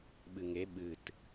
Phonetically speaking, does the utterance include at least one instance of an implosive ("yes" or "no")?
yes